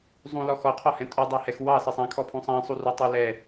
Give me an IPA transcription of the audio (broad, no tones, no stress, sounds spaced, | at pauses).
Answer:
zˤ ũ l ɔ x ɔ qʰ ɔ h ɛ̃ tʼ u dˤ ɜ h ɛ x w ɑ s ɛ sˤ ã kʰ ɔ pʰ ũ sˤ ã sˤ u r u tˤ u l ɛ